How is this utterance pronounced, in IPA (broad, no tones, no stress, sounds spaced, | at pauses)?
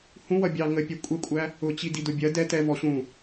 h ũ w ʌ bʲ ɑ ŋ ə pʲ ɛ kʷʼ ɛ kʷʼ æ | ʊ t͡ɕ i d i d ʊ bʲ ɜ d ɛ t ɛ v ɔ ɕ ũ